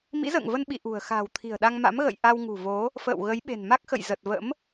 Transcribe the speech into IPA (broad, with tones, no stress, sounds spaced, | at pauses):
m ḭ˧˥ z ə̰ː˧˨ ŋ v ə˧ n ɓ ḭ˧˨ ʔ ṳ˨˩ ə̯ x a̤ː˨˩ w t̪ʰ i̤˨˩ ə̯ ɗ a˧ ŋ m a̰˧˥ m ɣ ə̰˧˨ j ʔ a˧ w ŋ ṳ˨˩ v o˨˦ | f ə̰ː˧˨ w ɣ ə˨˦ j ɓ e̤˨˩ n m a˦˥ k̚ x ə̰˧˨ j z ə˨˩ t̚ v ə̰˧˥ m